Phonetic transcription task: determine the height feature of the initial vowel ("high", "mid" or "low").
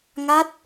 low